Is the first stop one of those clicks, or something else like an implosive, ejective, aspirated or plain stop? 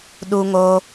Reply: implosive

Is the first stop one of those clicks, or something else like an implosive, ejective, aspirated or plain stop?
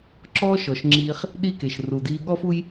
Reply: click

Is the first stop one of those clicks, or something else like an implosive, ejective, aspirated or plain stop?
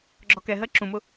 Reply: click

